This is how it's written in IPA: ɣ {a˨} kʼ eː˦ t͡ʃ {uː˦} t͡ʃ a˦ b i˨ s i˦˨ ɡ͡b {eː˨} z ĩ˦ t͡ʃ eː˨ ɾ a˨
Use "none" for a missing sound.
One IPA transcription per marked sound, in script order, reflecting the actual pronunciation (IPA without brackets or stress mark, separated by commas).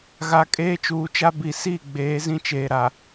a˨, uː˨, eː˨˦